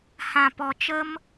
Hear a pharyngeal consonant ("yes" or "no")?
no